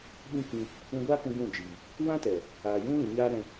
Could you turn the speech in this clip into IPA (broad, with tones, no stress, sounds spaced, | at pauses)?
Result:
ɓ ĩ˦ k ĩ˧ | ũ˧ ɡʷ aː˦ k ũ˧ ɡ ũ˦˨ d͡ʒ iː˨ | w ã˦ t ɛ˨ | aː˨ j ũ˦ l ĩ˨ ɲ aː˦ ɾ ɛ̃˧